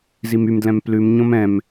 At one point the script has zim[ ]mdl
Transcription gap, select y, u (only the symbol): y